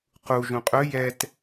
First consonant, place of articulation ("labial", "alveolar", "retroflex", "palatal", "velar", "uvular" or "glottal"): uvular